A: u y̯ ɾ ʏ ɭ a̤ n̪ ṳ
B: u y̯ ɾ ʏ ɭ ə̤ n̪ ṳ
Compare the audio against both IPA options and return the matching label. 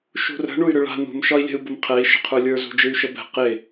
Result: A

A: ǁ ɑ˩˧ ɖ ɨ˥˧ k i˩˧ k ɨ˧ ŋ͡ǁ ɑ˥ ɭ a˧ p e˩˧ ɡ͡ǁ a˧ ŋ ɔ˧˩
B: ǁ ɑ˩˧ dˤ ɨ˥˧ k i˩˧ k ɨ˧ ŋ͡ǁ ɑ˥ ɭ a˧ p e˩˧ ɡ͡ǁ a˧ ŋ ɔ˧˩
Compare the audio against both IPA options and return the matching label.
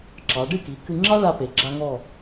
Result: A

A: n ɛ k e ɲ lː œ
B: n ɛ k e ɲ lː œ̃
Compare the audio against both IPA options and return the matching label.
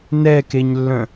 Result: B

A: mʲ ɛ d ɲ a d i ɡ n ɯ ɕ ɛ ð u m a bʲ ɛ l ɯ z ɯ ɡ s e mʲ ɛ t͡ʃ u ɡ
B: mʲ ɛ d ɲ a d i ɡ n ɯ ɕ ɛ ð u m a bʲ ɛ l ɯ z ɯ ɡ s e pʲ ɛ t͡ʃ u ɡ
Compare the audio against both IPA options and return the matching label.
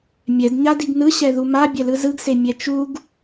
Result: A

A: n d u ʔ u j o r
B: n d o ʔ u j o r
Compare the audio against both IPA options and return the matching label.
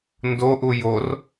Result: B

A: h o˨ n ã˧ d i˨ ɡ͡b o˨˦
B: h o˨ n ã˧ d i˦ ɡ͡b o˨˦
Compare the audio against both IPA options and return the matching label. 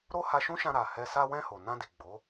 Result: A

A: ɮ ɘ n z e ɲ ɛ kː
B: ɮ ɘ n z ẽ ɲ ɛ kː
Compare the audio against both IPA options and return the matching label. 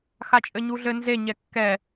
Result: A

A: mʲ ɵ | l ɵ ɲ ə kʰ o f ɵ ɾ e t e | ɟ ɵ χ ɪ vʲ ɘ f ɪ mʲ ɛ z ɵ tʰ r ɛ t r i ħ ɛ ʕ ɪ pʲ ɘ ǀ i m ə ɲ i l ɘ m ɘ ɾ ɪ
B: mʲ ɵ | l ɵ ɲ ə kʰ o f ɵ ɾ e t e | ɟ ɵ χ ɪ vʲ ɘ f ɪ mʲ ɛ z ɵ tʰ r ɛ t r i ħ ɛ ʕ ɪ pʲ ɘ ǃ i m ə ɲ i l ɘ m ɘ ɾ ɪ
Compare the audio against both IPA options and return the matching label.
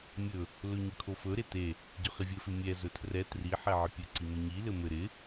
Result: A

